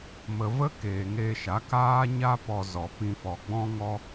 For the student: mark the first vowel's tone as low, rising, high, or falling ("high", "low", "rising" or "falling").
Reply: low